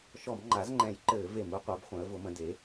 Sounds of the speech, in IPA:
ʃɔ˧˩˧mŋ͡ǃa˩˥zŋ͡ǃɛ̃˧˩˧jǃɘː˧˩˧ ve˧˩˧mu˩˥qʷɛ˩˥b χʷɛ̃˩˥ə̯vʊ˩˥mə̃˩˥ de˩˥

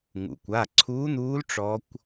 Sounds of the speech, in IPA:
ŋṵ˩kʷa˩˧˩ǀʰuː˧˥n̪uː˧˥l ʈ͡ʂɔ˧˥kʷ

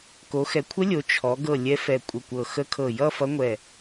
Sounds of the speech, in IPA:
ko˩˧xɛ˩˧kʷʰə˧˥lʲo˩˧ t͡ʃʰɔ˩˧ɡɤ˧˩ lʲɛ˧˥fɛ˧˩kʷʼə˧˩kʷɤ˧˩ xə˧˥kʰɤ˧˩jʌ˥˧ fʌ˧˥ŋʷɛ˧˩

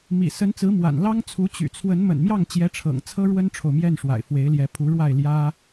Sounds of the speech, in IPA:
mḭ˨˩sə˧˥nt͡sɹ̩˧˥ mwa̰˨˩nlɑ˥ŋt͡sʰu˧˥ t͡ɕy̰˨˩t͡sʰwə˧˥n mə̰˨˩nmjɑ˥˩ŋt͡ɕjɛ˧˥ʈ͡ʂʰɤ̰˨˩ŋ t͡sʰɤ˥ɻwə˥nʈ͡ʂʰo˨ʊ̯ mjɛ˥˩nʂwa̰˨˩ɪ̯ fwe˧˥ɪ̯ljɛ˧˥pʰu˧˥ɻwa˥˩ɪ̯ ljä˥

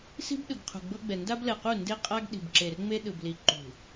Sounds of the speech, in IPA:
si̤˦b ɗɯ˨ɡqʰṳ˨ɡ͡bɤ˦ɡ͡bɛ˨ nda˦blɛ˨qu˦˨ nde˦qʼa˦ɡ ɗi̤˨bǁe˨rŋ͡me˦ ɗɯ˨bli˨ ǃṳ˨

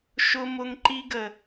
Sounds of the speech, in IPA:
ʃʊ˦mʊ˦ŋ ǃi˦ɡə˨

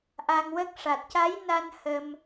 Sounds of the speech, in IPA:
ʔa˧ŋwə˦˥k̚ ʂa˨˩t̚ca˧˥jna˧n hə˧m

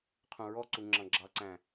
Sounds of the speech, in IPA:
qʰũɹɔǀu ŋ͡ǁɑ̃ɡ͡ǁɑǀæ̃

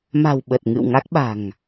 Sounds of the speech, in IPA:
ma̤˨˩w ɓə˨˩t̚ŋɨ̰˧˨wŋa˦˥k̚ɓa̤˨˩ŋ

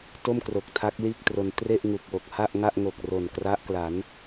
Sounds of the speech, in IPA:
to˥˩mkro˨˩k̚tʰa˦˥k̚ liː˥˩k̚tro˧n tre˥˩ʔ ŋu˨˩k̚wo˨˩k̚ha˥˩ʔŋa˥˩ʔ ŋo˨˩k̚ro˨˩nkra˦˥ʔkla˩˦n

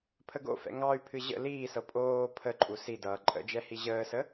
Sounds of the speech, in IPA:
pʰəɡo̰fɛ̰ ŋɑy̯pʰɨ ʑə̰ liːsɤ pʼoː pʰəǃʼu sidʌː ǃʼə̰d͡ʒɛ hiʑəːsə

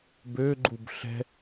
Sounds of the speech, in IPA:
bø ɡ͡ǃubɬɛ̤

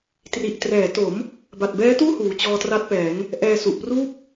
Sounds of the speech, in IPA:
tri˨˩ʔtrɛː˩˦to˩˦m | ba˨˩t̚bɛː˦˥tuː˥˩ huː˨˩t͡ɕɔː˧tra˦˥t̚pɛː˩˦ŋ | ʔɛː˧ su˨˩ʔpruː˥˩p̚

